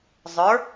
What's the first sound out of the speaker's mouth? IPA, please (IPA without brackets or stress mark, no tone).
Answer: zˤ